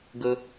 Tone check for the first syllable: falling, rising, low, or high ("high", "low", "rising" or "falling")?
low